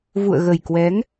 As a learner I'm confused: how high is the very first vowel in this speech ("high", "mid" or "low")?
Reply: high